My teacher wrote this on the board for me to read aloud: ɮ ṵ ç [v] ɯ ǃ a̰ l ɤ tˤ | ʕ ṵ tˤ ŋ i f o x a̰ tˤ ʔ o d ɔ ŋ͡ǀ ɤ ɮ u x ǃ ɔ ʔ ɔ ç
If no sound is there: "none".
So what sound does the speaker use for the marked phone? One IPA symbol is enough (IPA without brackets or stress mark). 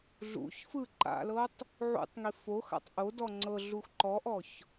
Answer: f